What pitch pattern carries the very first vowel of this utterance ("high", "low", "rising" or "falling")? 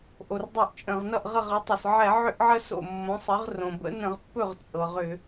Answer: low